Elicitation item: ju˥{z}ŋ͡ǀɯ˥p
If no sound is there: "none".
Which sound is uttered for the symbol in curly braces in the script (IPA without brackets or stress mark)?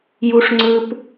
ʂ